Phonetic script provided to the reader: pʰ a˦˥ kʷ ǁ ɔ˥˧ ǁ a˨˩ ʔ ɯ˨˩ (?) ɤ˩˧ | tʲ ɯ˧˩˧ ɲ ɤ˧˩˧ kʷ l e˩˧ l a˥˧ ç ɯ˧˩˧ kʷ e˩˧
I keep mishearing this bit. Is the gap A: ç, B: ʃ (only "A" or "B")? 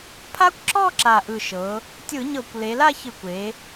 B